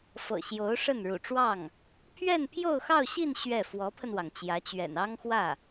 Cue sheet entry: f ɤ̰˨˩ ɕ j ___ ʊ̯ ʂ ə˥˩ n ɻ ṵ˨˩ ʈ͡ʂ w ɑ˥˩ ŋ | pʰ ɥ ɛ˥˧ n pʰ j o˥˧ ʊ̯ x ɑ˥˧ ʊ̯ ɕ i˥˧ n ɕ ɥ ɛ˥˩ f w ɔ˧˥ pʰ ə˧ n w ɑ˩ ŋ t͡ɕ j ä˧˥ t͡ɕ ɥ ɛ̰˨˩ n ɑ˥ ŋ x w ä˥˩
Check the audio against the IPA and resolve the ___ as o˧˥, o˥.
o˧˥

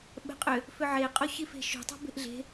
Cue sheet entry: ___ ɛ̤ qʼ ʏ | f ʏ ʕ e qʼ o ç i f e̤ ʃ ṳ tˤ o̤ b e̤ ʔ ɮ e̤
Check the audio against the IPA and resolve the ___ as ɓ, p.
ɓ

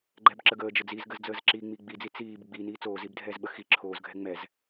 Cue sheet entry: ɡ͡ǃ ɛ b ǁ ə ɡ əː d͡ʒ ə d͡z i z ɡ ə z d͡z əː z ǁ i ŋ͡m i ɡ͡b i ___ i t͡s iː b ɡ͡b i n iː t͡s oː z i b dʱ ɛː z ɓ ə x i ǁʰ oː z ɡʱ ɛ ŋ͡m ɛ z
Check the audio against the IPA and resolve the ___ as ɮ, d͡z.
d͡z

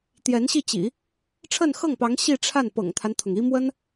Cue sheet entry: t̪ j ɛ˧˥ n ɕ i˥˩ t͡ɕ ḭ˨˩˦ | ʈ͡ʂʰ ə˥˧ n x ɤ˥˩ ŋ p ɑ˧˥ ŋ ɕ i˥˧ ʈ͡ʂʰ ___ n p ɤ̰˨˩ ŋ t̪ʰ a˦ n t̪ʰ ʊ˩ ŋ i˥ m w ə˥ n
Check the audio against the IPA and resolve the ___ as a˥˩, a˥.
a˥˩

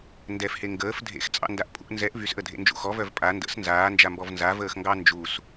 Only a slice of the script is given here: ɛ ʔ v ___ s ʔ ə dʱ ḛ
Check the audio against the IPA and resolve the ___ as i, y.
y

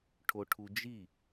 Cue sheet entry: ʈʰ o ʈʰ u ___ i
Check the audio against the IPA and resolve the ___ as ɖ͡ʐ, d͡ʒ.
d͡ʒ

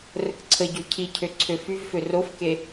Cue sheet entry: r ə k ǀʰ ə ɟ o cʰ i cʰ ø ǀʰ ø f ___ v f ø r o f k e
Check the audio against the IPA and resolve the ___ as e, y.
y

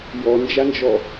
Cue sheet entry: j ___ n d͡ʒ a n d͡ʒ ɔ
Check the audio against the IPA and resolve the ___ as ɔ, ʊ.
ɔ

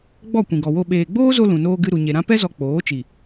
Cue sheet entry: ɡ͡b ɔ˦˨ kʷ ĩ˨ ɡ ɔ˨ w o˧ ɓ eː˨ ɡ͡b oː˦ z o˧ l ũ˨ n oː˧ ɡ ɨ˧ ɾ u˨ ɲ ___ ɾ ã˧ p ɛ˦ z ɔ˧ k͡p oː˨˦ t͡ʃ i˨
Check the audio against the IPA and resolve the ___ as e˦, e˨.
e˨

